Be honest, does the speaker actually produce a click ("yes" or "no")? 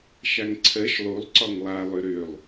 yes